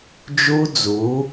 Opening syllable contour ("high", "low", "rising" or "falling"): high